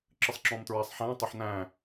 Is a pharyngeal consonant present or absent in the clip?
present